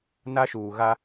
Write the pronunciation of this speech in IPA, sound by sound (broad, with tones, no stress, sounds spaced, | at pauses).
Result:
n a˦ ʃ uː˨ ɣ a˦